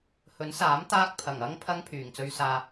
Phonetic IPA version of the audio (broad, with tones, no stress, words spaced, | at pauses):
hɵ˨˥nsaː˨˥m t̪aː˥k̚ pʰɐ˨˩ŋɐ˥ŋ pʰɐ˥ŋ pʰyː˨˩ŋt͡sɵ˧ɥsaː˧